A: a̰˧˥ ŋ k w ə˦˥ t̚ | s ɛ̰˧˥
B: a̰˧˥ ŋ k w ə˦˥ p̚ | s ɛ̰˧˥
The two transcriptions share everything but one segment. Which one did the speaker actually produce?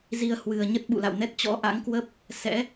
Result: B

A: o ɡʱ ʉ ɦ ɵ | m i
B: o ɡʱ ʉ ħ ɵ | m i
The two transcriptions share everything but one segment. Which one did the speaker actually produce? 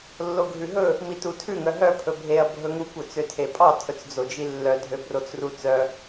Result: A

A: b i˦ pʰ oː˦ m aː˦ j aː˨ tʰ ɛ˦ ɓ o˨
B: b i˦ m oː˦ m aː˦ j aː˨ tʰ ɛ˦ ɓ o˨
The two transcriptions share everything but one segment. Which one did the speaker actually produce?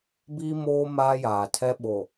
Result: B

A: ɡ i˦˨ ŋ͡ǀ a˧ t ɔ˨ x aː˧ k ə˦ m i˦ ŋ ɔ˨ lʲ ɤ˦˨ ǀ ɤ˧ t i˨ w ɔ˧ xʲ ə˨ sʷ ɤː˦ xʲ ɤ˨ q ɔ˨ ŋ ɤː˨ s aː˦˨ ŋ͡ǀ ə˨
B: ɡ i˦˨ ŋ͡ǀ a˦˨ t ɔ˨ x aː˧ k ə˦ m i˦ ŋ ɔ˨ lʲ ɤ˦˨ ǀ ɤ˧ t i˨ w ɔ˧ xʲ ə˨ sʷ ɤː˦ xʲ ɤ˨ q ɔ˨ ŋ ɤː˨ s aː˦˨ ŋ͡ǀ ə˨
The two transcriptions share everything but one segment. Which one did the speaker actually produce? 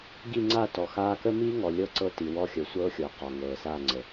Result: B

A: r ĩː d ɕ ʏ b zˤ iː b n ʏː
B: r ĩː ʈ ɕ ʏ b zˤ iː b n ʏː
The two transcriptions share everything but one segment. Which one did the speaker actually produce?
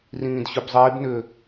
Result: A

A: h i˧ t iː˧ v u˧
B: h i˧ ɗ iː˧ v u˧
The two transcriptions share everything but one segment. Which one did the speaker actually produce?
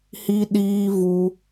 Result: B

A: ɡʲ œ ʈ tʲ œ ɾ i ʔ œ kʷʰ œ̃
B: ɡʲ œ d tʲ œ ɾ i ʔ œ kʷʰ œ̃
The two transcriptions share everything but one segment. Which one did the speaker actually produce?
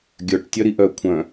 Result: A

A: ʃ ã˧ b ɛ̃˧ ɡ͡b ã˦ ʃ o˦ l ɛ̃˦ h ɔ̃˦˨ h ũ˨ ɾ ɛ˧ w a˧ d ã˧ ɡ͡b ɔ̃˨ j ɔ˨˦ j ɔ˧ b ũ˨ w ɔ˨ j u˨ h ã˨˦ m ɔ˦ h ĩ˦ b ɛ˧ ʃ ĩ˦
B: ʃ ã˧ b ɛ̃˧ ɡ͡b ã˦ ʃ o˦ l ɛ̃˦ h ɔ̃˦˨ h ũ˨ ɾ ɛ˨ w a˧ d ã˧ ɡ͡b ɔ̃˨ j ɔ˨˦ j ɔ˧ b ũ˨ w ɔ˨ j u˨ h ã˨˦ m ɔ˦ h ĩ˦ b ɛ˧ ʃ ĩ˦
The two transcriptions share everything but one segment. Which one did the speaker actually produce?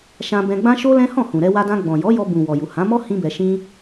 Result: A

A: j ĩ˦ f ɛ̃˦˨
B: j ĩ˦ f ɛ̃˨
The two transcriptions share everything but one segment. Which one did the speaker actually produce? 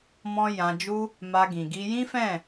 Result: A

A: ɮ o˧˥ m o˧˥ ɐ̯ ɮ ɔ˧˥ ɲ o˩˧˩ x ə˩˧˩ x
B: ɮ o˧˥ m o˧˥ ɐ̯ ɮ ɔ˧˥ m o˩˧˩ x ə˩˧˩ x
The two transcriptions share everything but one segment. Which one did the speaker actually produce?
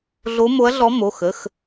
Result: B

